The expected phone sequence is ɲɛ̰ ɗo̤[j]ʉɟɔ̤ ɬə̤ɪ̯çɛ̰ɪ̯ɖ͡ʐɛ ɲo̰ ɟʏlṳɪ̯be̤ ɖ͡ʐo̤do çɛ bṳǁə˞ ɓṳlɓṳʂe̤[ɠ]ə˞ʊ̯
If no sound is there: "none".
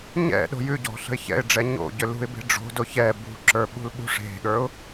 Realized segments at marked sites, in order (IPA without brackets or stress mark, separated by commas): j, ɠ